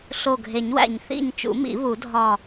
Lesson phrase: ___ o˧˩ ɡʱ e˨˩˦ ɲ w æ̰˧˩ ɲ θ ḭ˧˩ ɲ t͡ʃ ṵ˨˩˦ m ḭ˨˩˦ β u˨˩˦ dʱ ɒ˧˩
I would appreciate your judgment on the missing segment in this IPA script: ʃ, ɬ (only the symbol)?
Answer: ɬ